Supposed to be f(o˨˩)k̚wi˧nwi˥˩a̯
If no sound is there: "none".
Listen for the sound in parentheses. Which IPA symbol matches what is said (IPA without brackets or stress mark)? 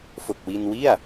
o˨˩